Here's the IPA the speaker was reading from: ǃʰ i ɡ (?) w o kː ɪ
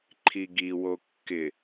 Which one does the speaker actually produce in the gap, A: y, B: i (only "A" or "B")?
B